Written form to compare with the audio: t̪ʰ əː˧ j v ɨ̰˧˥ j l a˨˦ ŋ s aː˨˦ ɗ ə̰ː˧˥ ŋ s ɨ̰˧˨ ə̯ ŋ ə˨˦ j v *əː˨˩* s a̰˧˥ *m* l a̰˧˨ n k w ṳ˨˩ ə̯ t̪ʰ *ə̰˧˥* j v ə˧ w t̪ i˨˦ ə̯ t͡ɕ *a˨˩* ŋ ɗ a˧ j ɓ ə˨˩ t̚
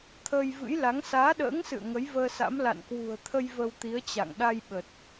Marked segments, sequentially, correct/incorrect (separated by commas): incorrect, correct, incorrect, incorrect